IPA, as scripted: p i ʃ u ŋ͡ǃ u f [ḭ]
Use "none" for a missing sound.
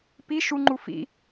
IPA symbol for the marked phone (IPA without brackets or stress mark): ḭ